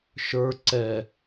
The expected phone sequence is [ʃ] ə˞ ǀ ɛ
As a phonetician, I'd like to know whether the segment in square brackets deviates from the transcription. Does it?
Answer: no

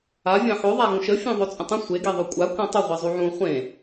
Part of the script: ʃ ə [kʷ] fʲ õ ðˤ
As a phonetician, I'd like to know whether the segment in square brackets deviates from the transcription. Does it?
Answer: yes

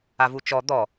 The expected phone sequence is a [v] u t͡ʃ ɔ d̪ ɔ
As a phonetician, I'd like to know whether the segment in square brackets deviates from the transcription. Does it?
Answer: no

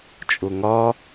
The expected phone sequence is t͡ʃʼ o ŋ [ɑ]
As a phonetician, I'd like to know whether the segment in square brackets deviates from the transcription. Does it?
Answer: yes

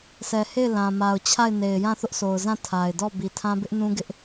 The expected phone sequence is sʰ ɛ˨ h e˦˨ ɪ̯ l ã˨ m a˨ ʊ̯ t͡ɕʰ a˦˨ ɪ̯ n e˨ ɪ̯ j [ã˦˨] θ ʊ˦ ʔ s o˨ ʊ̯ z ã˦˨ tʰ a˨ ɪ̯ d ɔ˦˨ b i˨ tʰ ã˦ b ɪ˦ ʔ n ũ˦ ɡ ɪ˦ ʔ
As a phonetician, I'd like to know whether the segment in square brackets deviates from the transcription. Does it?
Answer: no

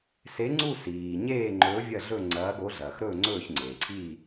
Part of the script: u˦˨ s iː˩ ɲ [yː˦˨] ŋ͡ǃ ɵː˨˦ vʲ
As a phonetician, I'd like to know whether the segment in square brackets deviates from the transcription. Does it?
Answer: yes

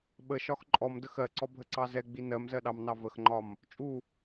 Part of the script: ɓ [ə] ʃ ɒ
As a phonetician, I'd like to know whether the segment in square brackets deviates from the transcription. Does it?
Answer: no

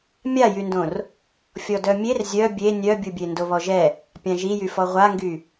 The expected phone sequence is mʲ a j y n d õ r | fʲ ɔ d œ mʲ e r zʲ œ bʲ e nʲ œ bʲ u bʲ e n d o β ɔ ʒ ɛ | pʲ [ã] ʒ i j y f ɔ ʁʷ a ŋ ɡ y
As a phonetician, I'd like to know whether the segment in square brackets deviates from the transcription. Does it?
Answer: no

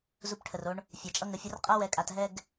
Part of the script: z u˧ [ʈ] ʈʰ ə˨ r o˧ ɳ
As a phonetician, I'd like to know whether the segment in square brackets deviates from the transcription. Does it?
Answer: yes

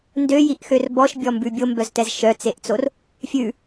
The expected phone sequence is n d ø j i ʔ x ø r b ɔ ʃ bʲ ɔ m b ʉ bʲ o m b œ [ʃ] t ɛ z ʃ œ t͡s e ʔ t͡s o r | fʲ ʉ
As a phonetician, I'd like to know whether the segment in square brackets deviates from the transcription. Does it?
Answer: yes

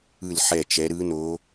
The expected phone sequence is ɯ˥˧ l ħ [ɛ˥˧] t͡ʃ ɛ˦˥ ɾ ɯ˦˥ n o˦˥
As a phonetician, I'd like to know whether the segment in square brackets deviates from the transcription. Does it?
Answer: no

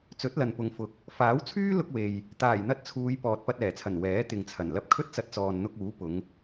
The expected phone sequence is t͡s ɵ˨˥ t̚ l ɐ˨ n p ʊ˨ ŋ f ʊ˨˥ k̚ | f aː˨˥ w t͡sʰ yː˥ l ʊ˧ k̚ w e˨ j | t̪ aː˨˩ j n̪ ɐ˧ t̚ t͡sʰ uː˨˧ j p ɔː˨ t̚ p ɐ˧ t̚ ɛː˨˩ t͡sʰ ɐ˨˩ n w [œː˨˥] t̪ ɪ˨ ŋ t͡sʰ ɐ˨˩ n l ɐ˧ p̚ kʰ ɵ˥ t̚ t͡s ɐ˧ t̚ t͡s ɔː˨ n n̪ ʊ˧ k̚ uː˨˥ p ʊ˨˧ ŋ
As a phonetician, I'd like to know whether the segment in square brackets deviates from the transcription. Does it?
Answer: yes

